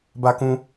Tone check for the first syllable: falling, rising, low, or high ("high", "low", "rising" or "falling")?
high